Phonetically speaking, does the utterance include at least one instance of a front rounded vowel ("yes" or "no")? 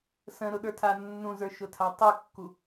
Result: no